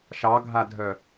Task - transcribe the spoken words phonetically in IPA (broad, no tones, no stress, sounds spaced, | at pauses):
ʃ ɑ ɡʱ a dʱ œ